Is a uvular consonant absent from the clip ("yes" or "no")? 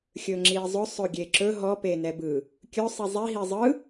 yes